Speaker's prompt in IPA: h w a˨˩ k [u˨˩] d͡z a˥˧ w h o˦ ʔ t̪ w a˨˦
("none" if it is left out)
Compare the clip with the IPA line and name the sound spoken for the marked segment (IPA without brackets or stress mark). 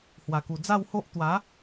u˨˩